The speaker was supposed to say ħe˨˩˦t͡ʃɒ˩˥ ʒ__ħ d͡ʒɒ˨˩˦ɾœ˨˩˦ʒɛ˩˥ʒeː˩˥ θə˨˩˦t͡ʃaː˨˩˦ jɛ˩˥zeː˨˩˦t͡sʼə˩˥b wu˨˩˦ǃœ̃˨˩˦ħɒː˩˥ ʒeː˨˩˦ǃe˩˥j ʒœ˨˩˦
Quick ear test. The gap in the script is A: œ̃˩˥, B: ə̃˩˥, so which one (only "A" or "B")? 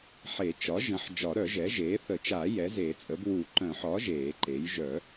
B